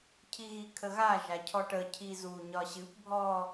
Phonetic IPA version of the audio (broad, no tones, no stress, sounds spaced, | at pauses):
cʰ i ɣ i kʰ ə ɣ a ʒ a cʰ ɔ ʈ ə cʰ i z u ɲ ɒ ɕ ɨ p bʱ ɔ